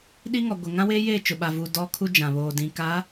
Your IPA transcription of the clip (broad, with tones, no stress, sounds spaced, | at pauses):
ɗ i˦ ŋ ɔ˨ ɡʷ ɪ˨ ŋ ã˦ w eː˦ j eː˦˨ t͡ʃ ʊ˨ ɓ a˨ v uː˨ d ɔ˦ kʰ u˦ d͡ʒ ã˨ β oː˨ d ĩ˨ k a˨˦